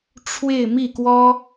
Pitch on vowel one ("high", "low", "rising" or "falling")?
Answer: falling